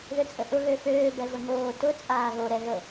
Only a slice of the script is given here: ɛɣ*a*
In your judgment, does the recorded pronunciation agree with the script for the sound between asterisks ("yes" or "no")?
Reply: no